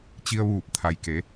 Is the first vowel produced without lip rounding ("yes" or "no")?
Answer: yes